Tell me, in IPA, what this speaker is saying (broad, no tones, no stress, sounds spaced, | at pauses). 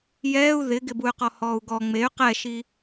j ɛː u̯ ð ɪ ɡ ɪ b u y̯ q ɔ h ɔː u̯ ɡ ɔ ŋ͡m e y̯ q ɛ ʃ i